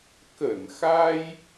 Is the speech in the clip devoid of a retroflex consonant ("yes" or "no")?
yes